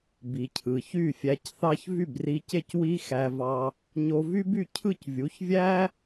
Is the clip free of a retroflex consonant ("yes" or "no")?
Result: yes